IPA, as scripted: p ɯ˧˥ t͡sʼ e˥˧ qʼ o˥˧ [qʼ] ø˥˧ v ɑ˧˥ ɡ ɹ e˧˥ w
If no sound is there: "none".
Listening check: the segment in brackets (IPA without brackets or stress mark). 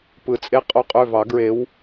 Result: qʼ